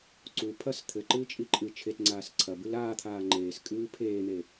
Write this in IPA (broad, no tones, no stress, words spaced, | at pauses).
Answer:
ǀu pʰɐs t̪ʰɘǃɨːt͡ʃʼi ǃʼɨ t͡ʃʰetŋ͡ǀaːs ǀʰɐ bɨlaːt̪ʰaː ŋ͡ǃeːs kʼɨːpʰeːn̪e